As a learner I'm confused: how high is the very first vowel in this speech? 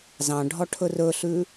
low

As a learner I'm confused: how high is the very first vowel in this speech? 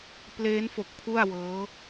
mid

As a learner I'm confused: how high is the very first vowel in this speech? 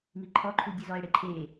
high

